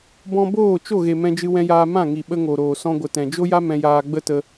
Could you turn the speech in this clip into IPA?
b ɔ̃˧ b oː˦˨ t͡ʃ o˦˨ ɣ e˨ m ɛ̃˧ d͡ʒ ɨ˧ w ɛ̃˧ j aː˧ m ã˦˨ ŋ i˨ ɓ ə˧ ŋ o˨ ɾ oː˨ s ɔ̃˧ ɡʷ ə˨ t ɛ̃˨ d͡ʒ o˦ j a˦ m ɛ̃˧ j aː˧ ɡ͡b ə˦ t ə˧

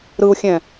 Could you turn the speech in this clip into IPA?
ɾ ɯ u̯ xʲ ɛ̃

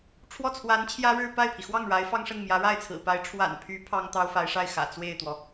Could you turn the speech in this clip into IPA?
ʈ͡ʂʰ w ɔ˥˩ t͡sʰ w a˧˥ n t͡ɕʰ j ä˥ ɻ ɻ̩˥˧ p a˥˩ ɪ̯ pʰ i˩ x w ɑ˥˩ ŋ ɻ a˧˥ ɪ̯ f ɑ˥ ŋ ʂ ə˥˩ n m j ä˧˥ ɻ a˥˩ ɪ̯ t͡sʰ ɹ̩˨˩ p a˧˥ ɪ̯ ʈ͡ʂʰ w a̰˨˩ n pʰ y˧˥ pʰ ɑ˥ ŋ t̪ ɑ˥ ʊ̯ f a˧˥ ɪ̯ ʂ a˥˩ ɪ̯ x ä̰˨˩ t͡s w e˥˩ ɪ̯ t̪ w ɔ˩

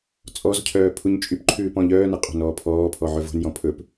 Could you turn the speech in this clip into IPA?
t͡sʼ ɔ z cʰ œː pʰ u ɲ t͡ʃʼ y p ǃʰ ʉː p ɔ̃ ʎ œː n ɛ qʼ o̤ n ɔː pʰ ɔː pʰ ɔ ʕ ɵ v o̤ n j ɔ̃ pʰ ɵ p

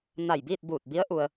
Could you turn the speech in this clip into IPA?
n a˧˩ j b iː˥˨ t̚ b uː˧˩ t̚ b i˧˥ ə̯ ʔ u˧ ə̯

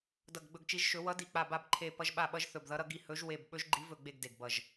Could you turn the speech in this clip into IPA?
d ʌ˧˩ ɡ ɡ͡b ɵ˧˩ ɡ t͡ʃ i˨˦ ʒ ʃ ɵ˨˦ w ʌ˨˦ d i˧˩ k͡p a˧˩ b a˧˩ b ǃʰ e˧˩ p ʌ˨˦ ʒ ɓ a˧˩ ɓ ʌ˨˦ ʒ θ ɵ˧˩ b ð ʌ˨˦ ɾ ʌ˨˦ ɡ i˧˩ h ɵ˨˦ ʒ w e˧˩ b ɓ ɵ˨˦ ʒ ɡ͡ǃ i˨˦ v ɵ˧˩ ɡ͡b e˧˩ ɡ d e˧˩ ɡ b ʌ˧˩ ʒ

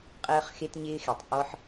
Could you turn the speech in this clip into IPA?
qʼ ɜː˧ χ x e˧ t ɲ ɪː˧ x e˩ tˤ ʔ ɔ˧ ħ

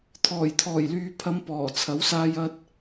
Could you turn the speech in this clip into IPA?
t̪ʰ ɔː˨˩ j t̪ʰ ɔː˨˩ j l yː˨ pʰ ɐ˨˧ m p ɔː˨˩ t͡sʰ ɐ˨˥ w s aː˧ j ɐ˧ t̚

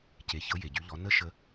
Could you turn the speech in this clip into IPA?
c e˨ ç ɤ˨˦ j e˨ ɟ y˨˦ ʎ ɔ˨˦ n ə˦ ʃ ə˧

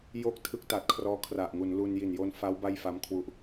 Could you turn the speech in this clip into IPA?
j o˥˩ k̚ tʰ ɯ˦˥ k̚ t a˨˩ t̚ kʰ r ɔː˦˥ kʰ r a˨˩ ʔ ŋ u˩˦ n l u˧ n j i˨˩ n j o˧ n f a˦˥ w b a˥˩ j f a˦˥ m kʰ w u˦˥ ʔ

